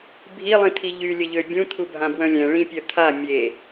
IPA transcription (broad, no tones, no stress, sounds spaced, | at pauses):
bʱ i lˠ ĩ t̪ʰ i ʎ y lʲ ə ʎ ø bʲ ũ t̪ʰ u bʱ ã b w œ̃ lʲ ɛ̃ ɭ ĩ pʲ œ t̪ʰ a mʲ e